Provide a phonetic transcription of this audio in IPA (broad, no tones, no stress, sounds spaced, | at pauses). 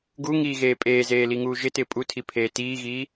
ɡ u ŋ iː ɣ eː pʼ eː z eː l i ŋ uː ʒ ɪ t ɪː pʼ u tʰ i pʰ eː t iː ɣ iː